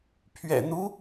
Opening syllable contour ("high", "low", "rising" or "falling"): low